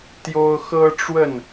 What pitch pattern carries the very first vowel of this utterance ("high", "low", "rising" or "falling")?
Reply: high